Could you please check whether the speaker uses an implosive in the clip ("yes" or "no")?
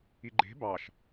no